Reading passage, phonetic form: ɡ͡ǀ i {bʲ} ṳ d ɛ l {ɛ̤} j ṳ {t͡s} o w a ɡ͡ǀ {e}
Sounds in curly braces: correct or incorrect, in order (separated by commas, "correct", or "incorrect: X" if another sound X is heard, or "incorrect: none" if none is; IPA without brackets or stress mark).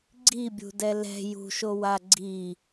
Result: correct, correct, incorrect: ʃ, incorrect: i